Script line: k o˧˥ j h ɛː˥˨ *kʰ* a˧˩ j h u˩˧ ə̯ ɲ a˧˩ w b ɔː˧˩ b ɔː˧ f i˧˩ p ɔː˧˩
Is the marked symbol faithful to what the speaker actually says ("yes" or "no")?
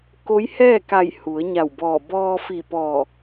no